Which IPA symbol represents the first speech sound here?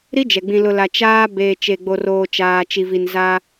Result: ɾ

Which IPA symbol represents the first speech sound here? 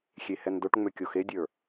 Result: xʲ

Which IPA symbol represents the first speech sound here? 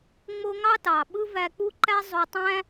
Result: ŋ͡m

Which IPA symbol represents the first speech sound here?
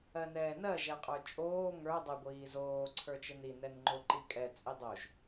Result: ɜ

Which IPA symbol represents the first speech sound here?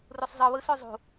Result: r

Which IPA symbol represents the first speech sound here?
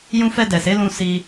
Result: j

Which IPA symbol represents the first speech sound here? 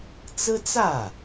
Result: t͡s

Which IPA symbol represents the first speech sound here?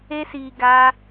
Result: e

